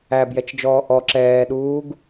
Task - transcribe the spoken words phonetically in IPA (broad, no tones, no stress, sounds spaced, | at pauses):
æ b j ɛ t͡ʃ d͡ʒ ɔː ʔ ɔ ǁ ɛː ɗ uː ɡ